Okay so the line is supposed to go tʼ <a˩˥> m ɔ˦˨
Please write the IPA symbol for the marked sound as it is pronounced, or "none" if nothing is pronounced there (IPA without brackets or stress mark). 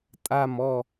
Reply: a˦˨